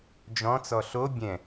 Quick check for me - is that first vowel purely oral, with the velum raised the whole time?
no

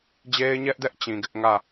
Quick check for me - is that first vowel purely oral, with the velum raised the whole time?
yes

